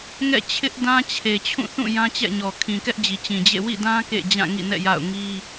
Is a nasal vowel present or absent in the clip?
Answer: present